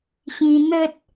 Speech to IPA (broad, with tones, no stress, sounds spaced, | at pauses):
ɕ ĩ˧ n̪ ə˦ t̚